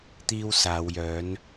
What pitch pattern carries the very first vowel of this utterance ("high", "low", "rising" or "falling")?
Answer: high